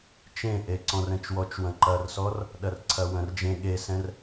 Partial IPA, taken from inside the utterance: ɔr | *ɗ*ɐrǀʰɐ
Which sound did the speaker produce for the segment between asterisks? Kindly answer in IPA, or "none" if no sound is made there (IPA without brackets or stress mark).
ɗ